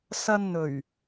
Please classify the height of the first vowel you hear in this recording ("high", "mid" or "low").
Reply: low